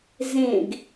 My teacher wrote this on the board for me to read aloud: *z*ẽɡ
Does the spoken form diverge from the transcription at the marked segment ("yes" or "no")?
no